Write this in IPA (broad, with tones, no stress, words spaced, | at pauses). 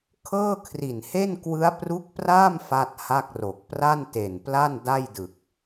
kʰɤː˥˩kʰri˨˩nhe˥˩n kwɯ˦˥a̯pru˦˥k̚praː˥˩m fa˥˩t̚ha˥˩k̚ro˨˩k̚ pra˥˩nte˨˩npla˥˩n da˥˩jdɯ˨˩k̚